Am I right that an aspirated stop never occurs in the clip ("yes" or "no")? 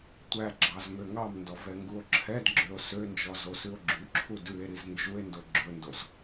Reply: no